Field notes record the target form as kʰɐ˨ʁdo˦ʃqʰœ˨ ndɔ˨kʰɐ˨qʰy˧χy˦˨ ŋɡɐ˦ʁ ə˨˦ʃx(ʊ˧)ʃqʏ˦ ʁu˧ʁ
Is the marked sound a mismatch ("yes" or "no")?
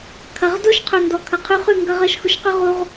no